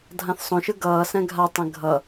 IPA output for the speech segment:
dʱ ã θ sˤ õ ʃ ɯ ɡ ʌː s ɛ̃ ɡʱ a tˤ ɛ̃ ɡʱ ʌ

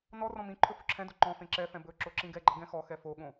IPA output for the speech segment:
n ɔ r ɔ̃ m ĩ ǃʰ ɵ f ɵ ǁʰ ɛ̃ d o ǃ ɔ̃ f ẽ ǁ ɛ f ɛ̃ b ɵ ǁ o ǁ ĩ ɡ ɛ ɡ͡ǃ ʌ ɡ ɛ̃ x ɔ x ɛ f o ɠ õ

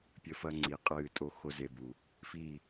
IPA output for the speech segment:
pʲ ɘ˦ f ɐ˦ ŋ͡ǀ i˨˦ qʼ ɨː˦˨ tʼ o˦ x o˦ z e˧ b u˨ | f iː˦˨

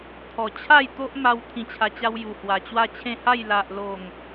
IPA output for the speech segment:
t̪ʰ ɔ˨˩ t͡ɕʰ a˥˧ j t̪ o˦ ʔ m a˧ w t̪ʰ ĩ˧ t͡ɕʰ a˧ t͡ɕ a˦ w j u˨˩ h w a˨˩ t͡ɕ w a˥˧ t͡ɕʰ ẽ˥˧ h a˥˧ j l a˨ ʔ l o˨˩ ŋ

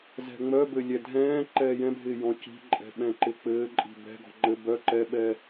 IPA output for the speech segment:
z ɛ̤ ŋ͡m œ b ɘ lʲ ɛ dʱ ɛ̃ː ǃ ɛː j ɛ̃ bʱ ɪː j ɔ̃ c i̤ ǃʼ ɛ̤ ɓ ɛ̃ ǃ ɪ k͡p ɘː ǃʼ i̤ b ɛ̤ ɡ ɔ̤ ŋ͡ǃ ɘ b œ ǃ ɛ ɓ ɛ

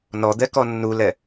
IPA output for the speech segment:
n ɔ d̪ ɛ k ɔ nː u l ɛ

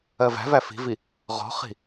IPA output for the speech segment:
ɜ v æ̤ v æ f i̤ v i | ʁ ɔ̤ χ i̤

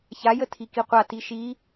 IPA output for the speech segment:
ç a j ə tʰ i k i qʷ a t i ʃ i

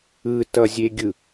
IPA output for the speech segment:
ɯ t ʌ zʲ e ɡʲ ɯ

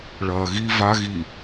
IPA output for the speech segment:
ɭ ɐː ɣ i v a ɣ i

